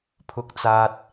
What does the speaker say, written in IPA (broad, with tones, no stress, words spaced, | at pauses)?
pʰʊ˨k̚t͡saː˨t̚